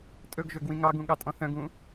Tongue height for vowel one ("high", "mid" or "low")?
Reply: mid